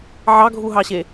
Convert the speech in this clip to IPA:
ʕ ɑ ɡʱ u ɦ ɑ ɕ e

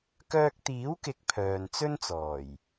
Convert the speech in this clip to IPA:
k œː˧ k̚ t̪ iː˨˥ w k ɪ˨˥ k̚ pʰ œː˨ n t͡s ɵ˥ n t͡s ɔː˨˩ j

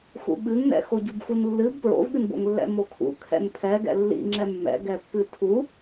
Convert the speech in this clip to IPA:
x ṵ ɓ ɨ ŋ n ɛ̰ x o ɟ u b x u n lː ɨ b p ɹ o̰ v ɠ ɨ n b o̰ ŋ lː ɛ̰ m o kʰ ṵ kʰ ɛ̰ n pʰ ɛ ɡ ɛ̰ lː ḭ ŋ͡ǁ ɛ mː ɛ̰ ɡ ɛ pː ɨ tʰ u

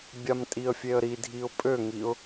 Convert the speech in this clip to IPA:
bʲ a m tʼ i ə̯ fʲ e ə̯ ɾ i dʱ i ʊ̯ pʼ ø ŋ i ʊ̯

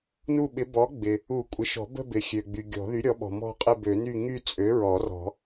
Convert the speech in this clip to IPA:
n u˥˧ ɓ ɪ˨˥ b ɔ˨˥ ɡ͡b ɪ˩ | u˨˩˦ kʷʼ ɪ˩ ʃ ɔ̤˨˩˦ b ə̤˥˧ b ɪ˩ xʲ ø˩ ɡ͡b y˩ ɡʲ ɔ̤˨˩˦ ð y˨˥ ɾʲ ɔ˨˥ ɓ ɔ̤˩ m ɔ̤˥˧ qʼ ɪ˥˧ b ø˨˩˦ n y˥˧ ŋ y˥˧ t͡sʼ ø˨˥ ɹ ɔ˨˩˦ r ɔ̤˨˩˦

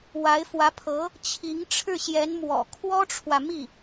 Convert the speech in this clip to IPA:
w a˧˥ ɪ̯ f w ä˧˥ pʰ ɤ˧˥ | t͡ɕʰ i˧˥ ŋ ʈ͡ʂʰ ɻ̩˥˩ ɕ j ɛ˧˥ n m w ɔ̰˨˩ kʰ w ɔ˥ ʈ͡ʂʰ w ä˨ m i˥˩

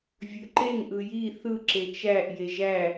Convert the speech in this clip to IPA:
vʲ ø ǃ e ŋ ʔ ɯ j i θ ɯ ǁ e t͡ʃ æ ʔ j e ʒ æ

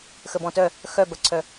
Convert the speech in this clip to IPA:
x ə b ɔ̃ t œ | x œ b ɐ ǀʰ œ

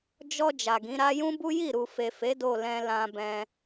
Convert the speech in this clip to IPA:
d͡ʒ ɔ˧ d͡ʒ a˨ ɡ ĩ˨˦ ɾ a˦ j ũ˦ b u˦ j i˦˨ ɾ u˨ f e˨ f e˨˦ d o˦˨ l ɛ̃˧ l ã˧ b ɛ̃˧

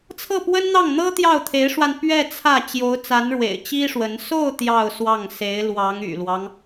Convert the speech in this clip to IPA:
t͡sʰ ɤ˥˩ p w ə˥ n n̪ ɑ˥˩ ŋ n̪ ɤ˥ t̪ j ɑ˥˩ ʊ̯ t̪ʰ e˧˥ ɪ̯ ʂ w a˧ n p ɥ ɛ˥˧ t͡sʰ ä˥˩ t͡ɕ j o˧˥ ʊ̯ t͡s a˧˥ n ɻ w ḛ˨˩ ɪ̯ t͡ɕ i˥ ʂ w ə˧˥ n s o˥˧ ʊ̯ t̪ j ɑ˥˧ ʊ̯ s w ɑ˥˩ ŋ s e˧˥ ɪ̯ l w ɑ˧˥ ŋ y̰˨˩ l w ɑ˦ ŋ

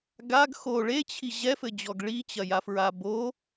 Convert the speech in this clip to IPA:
ɡ a ɡ x o ɭ e t͡ɕʰ i ʑ ɛ f ɘ d͡ʑ ɔ ɡ ɭ i t͡ɕ ɐ j a f ɹ a b o

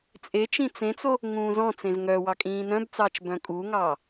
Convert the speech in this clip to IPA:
t͡sʼ e t͡ʃ ĩ t͡s ẽ t͡s o | ŋ ũː z ɔ̃ t͡s ẽ z ŋ œ w ɑ kʼ ĩː n œ̃ b t͡s ɑː t͡ʃ b œ̃ kʼ u ŋ ɑː

